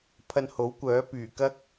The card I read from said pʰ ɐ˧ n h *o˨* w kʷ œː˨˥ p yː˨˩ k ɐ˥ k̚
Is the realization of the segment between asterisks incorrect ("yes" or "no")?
yes